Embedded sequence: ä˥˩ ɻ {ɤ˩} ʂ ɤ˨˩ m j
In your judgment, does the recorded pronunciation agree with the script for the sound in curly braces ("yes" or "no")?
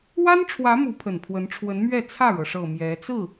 yes